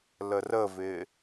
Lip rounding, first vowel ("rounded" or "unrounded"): unrounded